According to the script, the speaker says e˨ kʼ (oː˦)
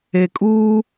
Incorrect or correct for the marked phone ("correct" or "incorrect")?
incorrect